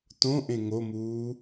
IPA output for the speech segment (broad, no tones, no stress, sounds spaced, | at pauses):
t õ ʔ ẽ ŋ o m uː